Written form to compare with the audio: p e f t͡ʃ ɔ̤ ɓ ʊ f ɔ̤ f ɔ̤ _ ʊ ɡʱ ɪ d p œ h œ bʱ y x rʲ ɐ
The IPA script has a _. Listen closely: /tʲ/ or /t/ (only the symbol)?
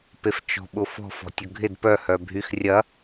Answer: tʲ